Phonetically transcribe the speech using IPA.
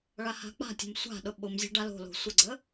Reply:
ɭaha̤k͡pa̤tʲə̤m sʷa̤ɗʊ ɓʊm zʲa̤ɖalo̤lo̤ sʷəɡ͡ǀə

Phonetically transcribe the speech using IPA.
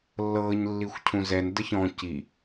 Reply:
lːɤːɲ lːixʷcʰũzɛn dəçɔ̃ ci

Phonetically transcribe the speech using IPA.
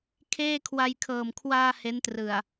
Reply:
kʰeː˥˩kʰwa˧jkʰɤː˨˩m kʰwaː˧ he˦˥ntrɯ˨˩a̯

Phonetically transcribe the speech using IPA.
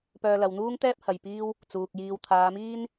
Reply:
pœː˧lɐ˨wn̪uː˥ŋt̪ɛː˥p̚ hɐ˨jpiː˥w | t͡suː˨k̚jiː˧w t̪ʰaː˨˧miː˥n

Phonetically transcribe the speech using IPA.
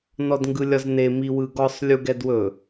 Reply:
nɔdŋɡɯlʲɒzne miwɯɡɔsˤ lʲuɡɛdwɵ

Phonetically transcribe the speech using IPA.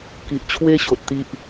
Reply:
ki˨ʔt͡ɕʰwe˦ ɕo˨t̚t̪i˦ʔ

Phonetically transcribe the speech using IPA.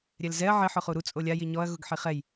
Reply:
ɾʲɛlzɛɐ̯ ʕɪ ħʊχuɾu t͡sʼolʲa jiɲɔɐ̯ ɣʊɡħiχɛj

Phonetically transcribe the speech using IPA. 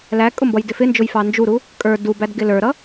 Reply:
lækʼʊmbʌjdɪ fɪnd͡ʒʊjfɑ nd͡ʒuɾu | kʼə˞ dubædɡɪ lə˞ɾʌ

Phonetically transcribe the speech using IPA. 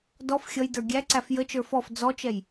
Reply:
dɔf xʲʌjdə˞ ɡʲæǀæf jət͡ʃə˞ fɔf d͡zɔt͡ʃɛj

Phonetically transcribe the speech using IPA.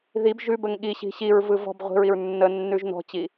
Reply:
ðib ʒʉbəŋ ɠiɕi̤ ɕiɹvɯ vɔ̤b ʁʷi̤ɹiɹ nːənːʉʒ nɔ̤t͡ɕi

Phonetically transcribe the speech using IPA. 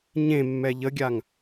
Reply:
ɲẽmːɛ ʎəɡʲaŋ

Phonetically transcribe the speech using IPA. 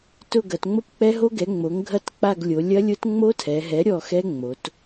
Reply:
tʊ˦˨ɡɐ˩˧t ŋ͡mo˦˥pk͡pɛ˦˥ɦo˦˥ ɡɛ˩˥ŋ͡mo˩˥ŋ ɡʱɐ˦˨t k͡pa˦˨ɡlʲo˩˧ lʲɐ˦˥lʲʊ˦˥t ŋ͡mo˦˥tʰɛ˩˧ɦɛ˩˥ ɾʲɔ˦˨xɛ˦˥ŋ͡mo˩˧t

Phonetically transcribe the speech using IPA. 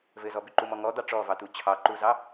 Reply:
vɘzɔbʉǃu mɔŋɔd̪ɑ ʈ͡ʂɔvɑt̪u t͡ɕʰɑǃuzɑ

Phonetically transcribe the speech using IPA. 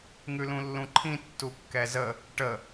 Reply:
ŋʉlũlːũǃʰĩ tːukːɛzə | ʈə

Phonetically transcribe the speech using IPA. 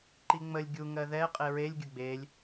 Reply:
ǃiŋ͡məlʲ ɡʲu ŋɜðɛ qʼeɹelʲ ɡʲʊɡ͡belʲ

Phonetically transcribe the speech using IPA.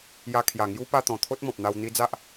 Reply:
ja˧kʰja˨˩ŋju˦ pa˧t̪ɔ̃˨˩ t̪ʰo˦t̚mɔ̃˨p̚n̪a˧w n̪i˧ d͡za˦ʔ

